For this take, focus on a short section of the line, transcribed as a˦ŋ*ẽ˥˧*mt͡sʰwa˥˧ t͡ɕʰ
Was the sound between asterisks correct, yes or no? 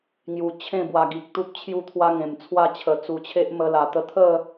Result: no